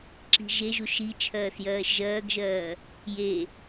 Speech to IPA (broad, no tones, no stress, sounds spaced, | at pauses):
ǁ i̤ ʒ e ʒ u ʃ i t͡ʃʰ ɜː s j ɜː ʃ ʒ ɜː ɡ ʒ ɜː | j e